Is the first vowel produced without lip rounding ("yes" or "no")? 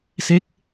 yes